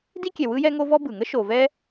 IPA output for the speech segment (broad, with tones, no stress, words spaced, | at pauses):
di˥kʲɛ˨ wɯ˥jɛ˥ ŋo˥vɔ˥ bɯ˩ŋə˥ ʃo˨vɛ˥